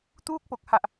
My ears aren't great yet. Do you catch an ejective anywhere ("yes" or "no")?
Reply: no